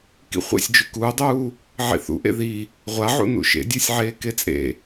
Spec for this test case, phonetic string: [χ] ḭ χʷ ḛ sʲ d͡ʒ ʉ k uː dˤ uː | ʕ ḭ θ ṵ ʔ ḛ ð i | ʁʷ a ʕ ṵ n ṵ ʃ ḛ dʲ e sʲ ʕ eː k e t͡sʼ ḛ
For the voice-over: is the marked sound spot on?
no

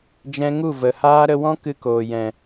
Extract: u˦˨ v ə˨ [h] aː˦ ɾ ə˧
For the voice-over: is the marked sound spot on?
yes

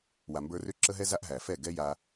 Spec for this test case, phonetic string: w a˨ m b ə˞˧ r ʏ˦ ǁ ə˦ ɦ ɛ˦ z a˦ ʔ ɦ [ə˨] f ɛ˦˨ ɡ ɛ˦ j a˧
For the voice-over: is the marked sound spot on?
no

